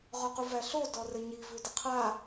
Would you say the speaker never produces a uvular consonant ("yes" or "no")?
no